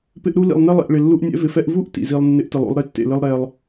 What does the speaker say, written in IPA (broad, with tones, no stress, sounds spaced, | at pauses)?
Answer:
p ɪ˦ ʔ ɾ u˦ l ḭ˨ lˠ n ɛ˦ lˠ ḭ˨ ʔ ɭ ɪ˨ lː u˦ ʔ nʲ ɛ̰˦ v ɪ˨ f ɛ˦ ʔ v u˦ ʔ t ḭ˨ z i˦ lˠ nː ɪ˦ ʔ t ɪ˨ lˠ ṵ˦ lˠ ɾ e˦ tː ḛ˨ l ɪ˦ lˠ ɾ ɛ˦ lˠ